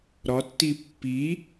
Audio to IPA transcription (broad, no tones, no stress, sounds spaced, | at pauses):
ɾ ɒ tː i pː i